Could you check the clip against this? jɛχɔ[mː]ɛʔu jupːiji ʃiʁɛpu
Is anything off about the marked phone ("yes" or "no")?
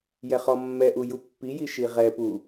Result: no